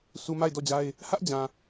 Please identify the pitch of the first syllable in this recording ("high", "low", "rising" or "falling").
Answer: low